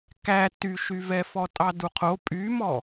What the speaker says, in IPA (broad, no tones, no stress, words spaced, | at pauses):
kæ tyʃyvɛ fɔtʼɑduqʰo pʼymɔ